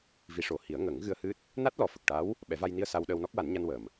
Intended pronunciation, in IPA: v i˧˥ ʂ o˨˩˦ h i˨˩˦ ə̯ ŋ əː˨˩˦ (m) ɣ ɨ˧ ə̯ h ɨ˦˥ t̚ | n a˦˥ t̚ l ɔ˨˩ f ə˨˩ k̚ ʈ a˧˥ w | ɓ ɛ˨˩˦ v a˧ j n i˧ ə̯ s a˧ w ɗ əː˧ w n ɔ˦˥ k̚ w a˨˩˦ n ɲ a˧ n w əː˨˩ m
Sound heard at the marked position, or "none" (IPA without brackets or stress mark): ŋ